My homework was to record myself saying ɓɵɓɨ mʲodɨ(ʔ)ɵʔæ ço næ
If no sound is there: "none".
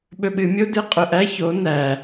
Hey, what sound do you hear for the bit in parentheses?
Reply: qʼ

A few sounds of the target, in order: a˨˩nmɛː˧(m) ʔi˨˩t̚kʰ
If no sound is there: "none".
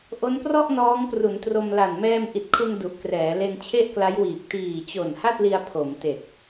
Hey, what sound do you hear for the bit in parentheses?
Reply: m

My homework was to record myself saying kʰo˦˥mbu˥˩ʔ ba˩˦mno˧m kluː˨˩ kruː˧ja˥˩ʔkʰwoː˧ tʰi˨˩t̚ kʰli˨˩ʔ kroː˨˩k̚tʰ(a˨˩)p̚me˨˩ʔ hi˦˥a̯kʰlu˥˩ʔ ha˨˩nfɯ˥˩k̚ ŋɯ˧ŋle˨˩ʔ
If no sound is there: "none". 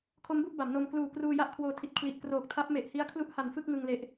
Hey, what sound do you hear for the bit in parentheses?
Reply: a˦˥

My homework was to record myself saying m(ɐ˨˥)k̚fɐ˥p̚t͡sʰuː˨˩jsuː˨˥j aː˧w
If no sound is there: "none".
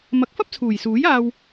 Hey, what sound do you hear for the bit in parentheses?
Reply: ɐ˨˥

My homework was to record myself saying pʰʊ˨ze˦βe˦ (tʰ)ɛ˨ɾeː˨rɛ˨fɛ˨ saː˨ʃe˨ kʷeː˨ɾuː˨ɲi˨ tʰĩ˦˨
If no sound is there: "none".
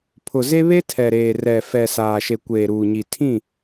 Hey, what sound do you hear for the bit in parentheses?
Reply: tʰ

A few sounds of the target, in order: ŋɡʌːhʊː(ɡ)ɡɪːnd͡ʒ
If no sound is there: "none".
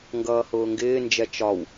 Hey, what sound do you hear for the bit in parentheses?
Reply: ŋ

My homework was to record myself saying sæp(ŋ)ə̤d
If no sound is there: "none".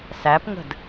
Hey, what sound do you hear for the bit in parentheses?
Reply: ŋ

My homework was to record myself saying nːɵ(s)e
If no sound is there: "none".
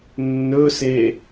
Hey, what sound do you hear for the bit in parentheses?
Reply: s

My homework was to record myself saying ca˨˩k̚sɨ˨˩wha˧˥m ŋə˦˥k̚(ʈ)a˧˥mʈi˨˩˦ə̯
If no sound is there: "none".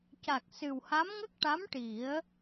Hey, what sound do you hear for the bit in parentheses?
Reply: ʈ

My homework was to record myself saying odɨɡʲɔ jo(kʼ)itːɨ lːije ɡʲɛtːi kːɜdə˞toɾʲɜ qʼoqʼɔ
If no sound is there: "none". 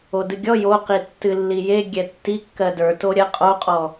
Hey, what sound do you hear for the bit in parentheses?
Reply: q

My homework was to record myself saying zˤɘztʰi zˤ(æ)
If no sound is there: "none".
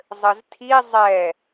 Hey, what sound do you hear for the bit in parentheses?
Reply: ɛ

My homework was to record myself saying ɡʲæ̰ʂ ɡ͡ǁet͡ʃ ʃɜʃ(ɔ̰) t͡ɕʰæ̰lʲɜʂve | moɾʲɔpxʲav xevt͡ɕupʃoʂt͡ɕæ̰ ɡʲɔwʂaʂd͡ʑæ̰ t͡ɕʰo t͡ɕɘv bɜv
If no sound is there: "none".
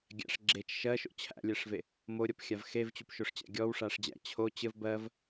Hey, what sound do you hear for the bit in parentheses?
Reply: o̰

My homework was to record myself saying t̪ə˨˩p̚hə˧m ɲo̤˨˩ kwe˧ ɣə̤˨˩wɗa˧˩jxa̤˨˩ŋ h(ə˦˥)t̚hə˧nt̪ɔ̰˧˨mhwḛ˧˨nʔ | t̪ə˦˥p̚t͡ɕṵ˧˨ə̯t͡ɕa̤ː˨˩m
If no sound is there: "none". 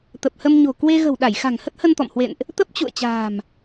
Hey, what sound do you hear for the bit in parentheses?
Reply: ə˦˥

